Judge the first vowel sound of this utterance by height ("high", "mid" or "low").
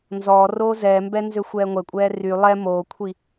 mid